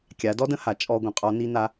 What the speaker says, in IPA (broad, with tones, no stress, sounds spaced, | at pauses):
kʲ a˩˧ d ɔ˥ d ə̃˥ h a˩ t͡ʃʼ ɔ˧ ɡʷ ə̃˧˥ qʼ ɔ˧˥ n i˥ n a˥